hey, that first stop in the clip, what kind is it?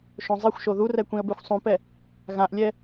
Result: plain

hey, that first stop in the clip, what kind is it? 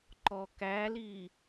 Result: click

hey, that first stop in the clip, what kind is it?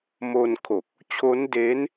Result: aspirated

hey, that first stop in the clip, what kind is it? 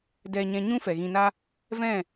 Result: plain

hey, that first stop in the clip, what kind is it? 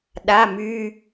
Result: implosive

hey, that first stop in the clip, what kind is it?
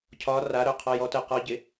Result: aspirated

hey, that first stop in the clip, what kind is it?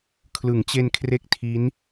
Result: aspirated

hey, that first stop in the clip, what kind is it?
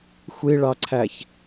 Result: click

